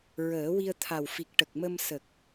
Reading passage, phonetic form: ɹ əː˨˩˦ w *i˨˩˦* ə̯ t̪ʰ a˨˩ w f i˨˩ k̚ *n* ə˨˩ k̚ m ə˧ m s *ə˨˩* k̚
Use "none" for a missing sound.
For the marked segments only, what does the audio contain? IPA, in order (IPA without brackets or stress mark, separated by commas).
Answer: i˧, ʈ, ə˨˩